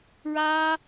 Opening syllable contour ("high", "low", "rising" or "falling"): high